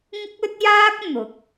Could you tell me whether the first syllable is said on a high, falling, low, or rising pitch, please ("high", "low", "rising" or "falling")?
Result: high